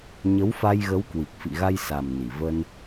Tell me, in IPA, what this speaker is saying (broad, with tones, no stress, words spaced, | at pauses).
ɲə˨˦wfa˧jɣə˨˦wkwi˨˩k̚ fḭ˧˨ɣa˧j sa˨˩m ni˧˩və˧n